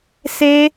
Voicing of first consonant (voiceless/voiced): voiceless